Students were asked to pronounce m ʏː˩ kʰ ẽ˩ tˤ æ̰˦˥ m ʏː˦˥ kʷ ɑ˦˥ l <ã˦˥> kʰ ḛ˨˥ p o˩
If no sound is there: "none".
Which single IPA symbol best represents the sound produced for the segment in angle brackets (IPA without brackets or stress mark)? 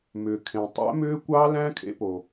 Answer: æ̃˦˥